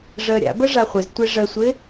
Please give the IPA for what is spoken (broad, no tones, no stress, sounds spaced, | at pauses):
ʐ əː ɾʲ a̰ b ə ʐ a χʷ ɪ z tʷ e ʐ ə sʷ ɪ